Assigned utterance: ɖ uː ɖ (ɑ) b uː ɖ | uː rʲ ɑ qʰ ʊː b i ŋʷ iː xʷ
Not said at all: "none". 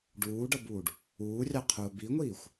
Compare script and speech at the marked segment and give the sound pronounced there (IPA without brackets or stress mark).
ʌ